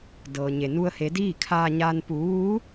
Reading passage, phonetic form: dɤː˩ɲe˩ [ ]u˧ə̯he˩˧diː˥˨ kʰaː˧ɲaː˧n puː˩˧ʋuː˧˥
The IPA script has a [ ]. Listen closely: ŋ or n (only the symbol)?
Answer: n